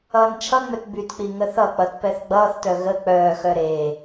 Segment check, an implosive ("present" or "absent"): absent